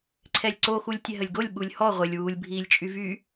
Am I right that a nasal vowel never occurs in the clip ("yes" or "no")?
yes